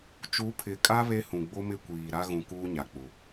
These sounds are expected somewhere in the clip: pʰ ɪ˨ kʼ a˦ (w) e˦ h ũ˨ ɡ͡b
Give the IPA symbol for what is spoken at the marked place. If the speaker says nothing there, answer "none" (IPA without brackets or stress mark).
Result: β